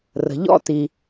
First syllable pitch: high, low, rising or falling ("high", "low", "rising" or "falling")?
low